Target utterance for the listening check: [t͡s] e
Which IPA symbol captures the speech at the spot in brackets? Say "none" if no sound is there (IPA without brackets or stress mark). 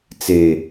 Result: t͡s